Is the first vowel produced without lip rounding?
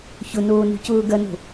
no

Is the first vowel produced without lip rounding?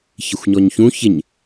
yes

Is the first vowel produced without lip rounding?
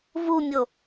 no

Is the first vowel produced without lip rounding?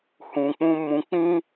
no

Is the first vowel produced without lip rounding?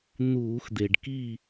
no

